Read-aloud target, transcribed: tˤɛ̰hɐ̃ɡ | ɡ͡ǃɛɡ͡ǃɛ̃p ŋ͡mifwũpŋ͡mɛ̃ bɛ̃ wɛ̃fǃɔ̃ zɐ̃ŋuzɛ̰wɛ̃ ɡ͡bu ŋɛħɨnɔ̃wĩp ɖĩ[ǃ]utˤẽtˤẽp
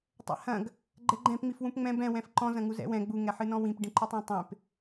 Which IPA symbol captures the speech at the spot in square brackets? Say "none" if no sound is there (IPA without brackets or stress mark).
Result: ǃ